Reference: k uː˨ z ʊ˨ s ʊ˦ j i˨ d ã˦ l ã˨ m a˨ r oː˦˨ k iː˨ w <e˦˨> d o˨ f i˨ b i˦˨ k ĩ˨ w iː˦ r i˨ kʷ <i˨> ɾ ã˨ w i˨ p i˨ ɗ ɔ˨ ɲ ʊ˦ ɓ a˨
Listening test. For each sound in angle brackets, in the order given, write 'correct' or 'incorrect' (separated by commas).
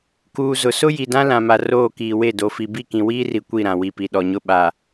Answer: correct, incorrect